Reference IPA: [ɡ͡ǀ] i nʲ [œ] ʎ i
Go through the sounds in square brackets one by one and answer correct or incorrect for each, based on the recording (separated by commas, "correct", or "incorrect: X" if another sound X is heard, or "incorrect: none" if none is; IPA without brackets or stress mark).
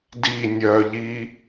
incorrect: d, correct